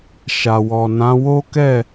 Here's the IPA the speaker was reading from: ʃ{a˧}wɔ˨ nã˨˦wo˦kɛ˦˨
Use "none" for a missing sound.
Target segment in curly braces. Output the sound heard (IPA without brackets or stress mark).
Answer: a˨